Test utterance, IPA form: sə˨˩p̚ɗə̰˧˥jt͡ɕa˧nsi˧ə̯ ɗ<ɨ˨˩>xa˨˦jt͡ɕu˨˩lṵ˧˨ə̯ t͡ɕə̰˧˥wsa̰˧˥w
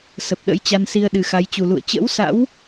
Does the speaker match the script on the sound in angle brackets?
yes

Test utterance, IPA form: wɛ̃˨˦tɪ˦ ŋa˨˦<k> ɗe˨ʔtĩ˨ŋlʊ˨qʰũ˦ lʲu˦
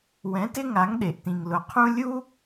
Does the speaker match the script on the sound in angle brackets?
no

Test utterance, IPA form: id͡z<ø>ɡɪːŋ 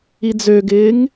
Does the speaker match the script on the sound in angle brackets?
yes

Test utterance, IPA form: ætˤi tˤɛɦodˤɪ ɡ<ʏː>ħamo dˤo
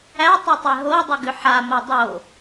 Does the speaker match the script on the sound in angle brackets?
no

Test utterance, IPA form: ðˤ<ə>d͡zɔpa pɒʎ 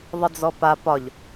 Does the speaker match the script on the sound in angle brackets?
yes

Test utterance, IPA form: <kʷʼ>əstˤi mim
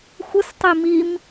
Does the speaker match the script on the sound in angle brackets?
no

